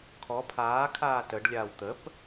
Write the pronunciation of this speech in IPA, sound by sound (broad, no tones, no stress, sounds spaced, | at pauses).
kʰ ɔ pʰ aː kʰ aː t ə ɖ lʲ aː w t̪ ə p